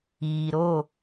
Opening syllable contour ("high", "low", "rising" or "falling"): low